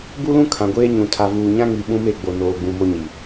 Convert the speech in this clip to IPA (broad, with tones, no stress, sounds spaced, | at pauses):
b u˦ l ũ˦ kʰ ã˨ ɡʷ eː˦ ɲ ũ˨ tʰ a˨ v uː˨ ɲ ã˦ ŋ i˨ ɓ ũ˦ m e˦˨ ɡ͡b o˨ n oː˨ ɡ͡b ũ˨ m o˦ ɲ i˨